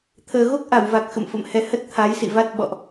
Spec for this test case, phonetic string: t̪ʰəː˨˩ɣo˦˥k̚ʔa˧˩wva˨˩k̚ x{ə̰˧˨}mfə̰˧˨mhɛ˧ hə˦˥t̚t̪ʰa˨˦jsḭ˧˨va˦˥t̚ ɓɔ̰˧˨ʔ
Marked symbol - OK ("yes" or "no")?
yes